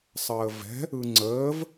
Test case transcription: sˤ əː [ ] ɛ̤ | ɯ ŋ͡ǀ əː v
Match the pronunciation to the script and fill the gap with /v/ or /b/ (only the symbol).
v